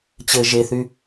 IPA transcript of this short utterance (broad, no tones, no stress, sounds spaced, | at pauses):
t͡ɕ ɘ ʒ e θ y